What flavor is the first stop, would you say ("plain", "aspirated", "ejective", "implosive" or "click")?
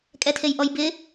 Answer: ejective